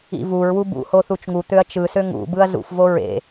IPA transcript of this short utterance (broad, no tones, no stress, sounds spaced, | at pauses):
ḭ v u ɹ w u b ṵ h o θ u t͡ʃ ŋ u t̪ ø ɐ̯ t͡ʃ ɯ s ø ŋ ṵ b ɯ ɐ̯ z ṵ f v o ɹ ḛ